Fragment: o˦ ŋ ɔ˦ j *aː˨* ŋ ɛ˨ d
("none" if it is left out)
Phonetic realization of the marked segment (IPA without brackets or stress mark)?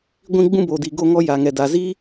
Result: a˨